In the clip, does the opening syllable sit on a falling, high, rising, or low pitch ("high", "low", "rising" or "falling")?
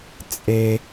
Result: high